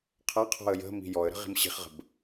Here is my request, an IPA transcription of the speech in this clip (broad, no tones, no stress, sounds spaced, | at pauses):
qʰ a qʰ ɔ̤ ə̯ j ə̤ m i̤ j ɔ ə̯ ɾ ə̤ ʁ i̤ m ɕ i̤ χ ʁ ə̤ b